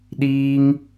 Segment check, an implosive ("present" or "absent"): present